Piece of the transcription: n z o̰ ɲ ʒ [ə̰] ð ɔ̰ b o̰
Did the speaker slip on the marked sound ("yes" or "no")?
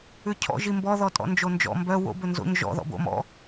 yes